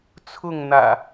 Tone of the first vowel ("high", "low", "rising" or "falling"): falling